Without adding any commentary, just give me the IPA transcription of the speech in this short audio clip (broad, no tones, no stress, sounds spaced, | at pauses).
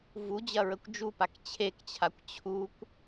v u d͡ʑ ɐ ɹ ə kʷ d͡ʒ u p a k t͡ɕʰ e k t͡ɕʰ a kʷ t͡ɕʰ u kʷ